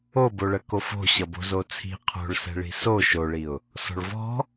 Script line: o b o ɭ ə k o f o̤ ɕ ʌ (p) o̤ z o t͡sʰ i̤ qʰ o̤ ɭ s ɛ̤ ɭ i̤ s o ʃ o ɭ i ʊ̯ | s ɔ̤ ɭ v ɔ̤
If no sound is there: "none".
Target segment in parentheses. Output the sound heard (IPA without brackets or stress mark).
b